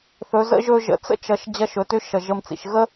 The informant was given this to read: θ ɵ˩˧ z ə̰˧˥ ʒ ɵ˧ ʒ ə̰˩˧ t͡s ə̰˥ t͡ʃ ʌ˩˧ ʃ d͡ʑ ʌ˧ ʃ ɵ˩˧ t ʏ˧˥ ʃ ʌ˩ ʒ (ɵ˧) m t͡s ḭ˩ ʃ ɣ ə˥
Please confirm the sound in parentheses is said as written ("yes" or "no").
no